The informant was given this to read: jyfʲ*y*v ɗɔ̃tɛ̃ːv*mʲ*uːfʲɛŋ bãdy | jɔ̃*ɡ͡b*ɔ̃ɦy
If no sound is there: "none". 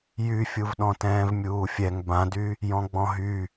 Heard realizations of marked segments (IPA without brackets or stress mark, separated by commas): u, mʲ, ɡ͡b